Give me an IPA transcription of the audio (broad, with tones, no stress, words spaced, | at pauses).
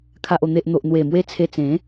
kʰa˨ʔo˨˩n̪e˨ʔ n̪o˨ʔn̪we˨˩mwe˧ t͡sʰe˧t͡sẽ˨˦